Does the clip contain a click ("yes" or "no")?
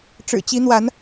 no